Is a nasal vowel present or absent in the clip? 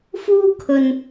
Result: absent